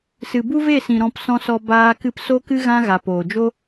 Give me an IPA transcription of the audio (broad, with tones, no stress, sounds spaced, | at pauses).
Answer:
s ɨ˨ b u˦ v e˦˨ s ĩ˨ ɾ ɔ̃˧ p s ɔ̃˧ s ɔ˧ b aː˧ k ɨ˧ p s o˦ k ɨ˦ ɣ ã˦ ɣ a˨ p oː˨ d͡ʒ o˦